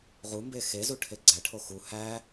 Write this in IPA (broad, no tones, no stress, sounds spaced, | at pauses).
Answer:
ʁ u m b e x e z u ʈʰ e ɡ͡ǀ æ ʈʰ o x u h æ